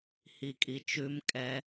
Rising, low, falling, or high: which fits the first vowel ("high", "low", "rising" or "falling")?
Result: low